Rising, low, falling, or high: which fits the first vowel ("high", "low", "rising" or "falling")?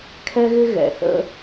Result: high